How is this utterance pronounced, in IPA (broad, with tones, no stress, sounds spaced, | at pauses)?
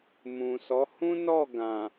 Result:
m ũ˨ s ɔ˨˦ h ũ˦ n ɔ˦˨ ɡ ã˨